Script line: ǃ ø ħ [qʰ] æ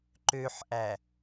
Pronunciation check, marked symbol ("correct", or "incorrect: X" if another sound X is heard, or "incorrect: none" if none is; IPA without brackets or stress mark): incorrect: ʔ